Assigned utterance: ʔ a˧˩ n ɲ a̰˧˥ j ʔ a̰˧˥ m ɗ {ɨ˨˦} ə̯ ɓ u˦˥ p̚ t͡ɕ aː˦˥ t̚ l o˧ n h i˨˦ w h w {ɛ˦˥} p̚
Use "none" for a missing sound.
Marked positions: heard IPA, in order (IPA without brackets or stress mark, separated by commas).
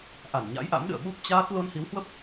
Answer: ɨ̰˧˨, ə˦˥